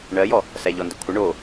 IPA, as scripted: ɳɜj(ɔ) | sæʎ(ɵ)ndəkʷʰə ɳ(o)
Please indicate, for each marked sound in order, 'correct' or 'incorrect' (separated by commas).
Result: correct, incorrect, correct